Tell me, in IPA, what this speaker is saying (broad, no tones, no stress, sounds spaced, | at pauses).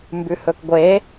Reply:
m b ʉ h ɵ k ɡʷ e